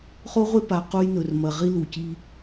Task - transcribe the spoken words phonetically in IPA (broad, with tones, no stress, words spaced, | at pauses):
χo˦ʁʷe˦pa˨ qu˦jnɵ˨rmɐ˨ ʁi˦lu˨ci˦